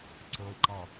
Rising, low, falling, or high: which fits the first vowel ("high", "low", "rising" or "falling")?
low